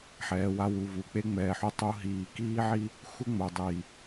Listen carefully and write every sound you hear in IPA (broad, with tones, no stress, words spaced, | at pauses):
ħɛː˨wa˦wu˨vu˨ k͡pe˦ŋ͡mɛː˨ħu˦ tˤu˦ɦiː˨ kiː˦ʕi˦ | xʷɪ˦ŋ͡mo˨ dˤiː˨